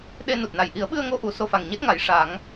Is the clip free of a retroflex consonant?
no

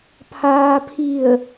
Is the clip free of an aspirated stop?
no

